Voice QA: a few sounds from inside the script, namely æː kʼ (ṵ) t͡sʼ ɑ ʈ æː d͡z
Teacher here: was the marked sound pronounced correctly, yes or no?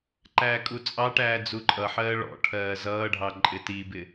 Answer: no